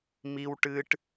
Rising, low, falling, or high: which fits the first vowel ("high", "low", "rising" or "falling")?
high